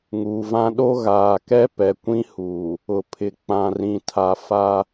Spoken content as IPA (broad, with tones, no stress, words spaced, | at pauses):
ŋuː˨vã˦ ɗo˦ɣaː˨ kɛ˦pɛ˨kʷĩ˦ huː˨ | ʊ˨pʰɪ˨ k͡pã˨rĩ˨tʰa˨ fa˦